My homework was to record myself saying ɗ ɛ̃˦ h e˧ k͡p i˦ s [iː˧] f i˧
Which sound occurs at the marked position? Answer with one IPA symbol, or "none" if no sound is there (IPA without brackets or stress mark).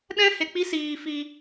iː˧